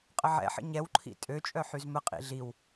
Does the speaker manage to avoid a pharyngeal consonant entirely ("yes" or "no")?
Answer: no